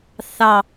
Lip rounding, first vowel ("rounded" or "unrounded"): unrounded